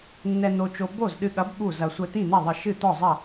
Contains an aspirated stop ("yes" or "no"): no